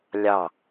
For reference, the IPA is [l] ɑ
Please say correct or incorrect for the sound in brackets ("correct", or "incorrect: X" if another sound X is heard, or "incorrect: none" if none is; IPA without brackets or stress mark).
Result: incorrect: lʲ